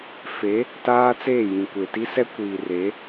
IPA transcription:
fe˨˦ | taː˦t͡seː˦˨ jĩ˨kʷe˨ti˦sɛ˦ kʷiː˨ re˨˦

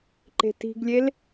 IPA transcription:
ǃe̤ti̤ɡlʲel

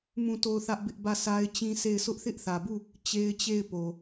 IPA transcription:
mũ˦˨to˦˨ʊ̯θä˦ʔbɪ˦ʔ bä˦˨sʰa˦ɪ̯t͡ɕĩ˦sʰe˦˨ɪ̯ sʊ˦ʔθɪ˦ʔθä˨bu˦˨ | t͡ɕe˦ɪ̯t͡ɕe˦˨ɪ̯ po˨

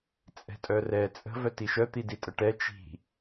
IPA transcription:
t͡sʼɛ̤tʼœrɛ t͡sʼə̤ vœtiʃœ t̪iditʼəʈɛ t͡ʃi̤

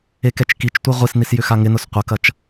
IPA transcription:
ekɛt͡ʃkit͡ʃtʷi ʁʷisnis jʏxaŋɪnʊs qʷɐkɐt͡ʃ

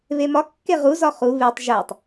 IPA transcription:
βemɒ kːeʁu zɒχu βetˤ ʒætˤ

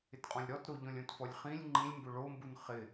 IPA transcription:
ɪtqʼɔ̃lʲɾɔtɾo ʎɔ̃lʲõtfɔlʲχĩlʲ ŋ͡ǃĩlʲmbʊ ɭombun χɪ

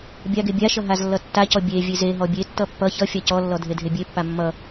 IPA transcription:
bʲaɡ ebʲaʃʌ ɦazlːʌtːacɔ bʲe vʲezeɦɔ bʲetːʌ pːʌ çʌfʲa cɔlːɔ dʱedʱebʲepːa mːʌ

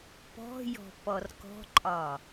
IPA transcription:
pɔ̤jɔ̤ pɔrkɔ̤ǃʼɒ

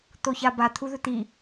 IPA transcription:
t̪oçaba t̪ʰuðɵt̪i

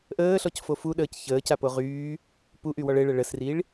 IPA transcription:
ʔəːɬɔcfo fuɗəːc çəːcapo ʁyː | puʔywɔɭ ɘɭə ɭəsriɭ

